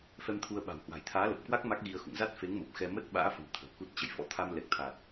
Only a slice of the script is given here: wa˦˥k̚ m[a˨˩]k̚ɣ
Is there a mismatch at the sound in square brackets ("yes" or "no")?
yes